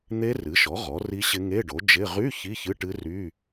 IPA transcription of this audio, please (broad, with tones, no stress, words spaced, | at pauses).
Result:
n̪e˦˥rɨ˩˥ʃɔ˩˥ ʁɔ˩˥ri˦˥ɕɪ˦˥ ŋe˧˥˧ɖo˩˥d͡ʒɪ˧˥˧ ʁy˧˥˧ çi˧˥˧çɨ˧˥˧ʈɨ˦˥ry˧˥˧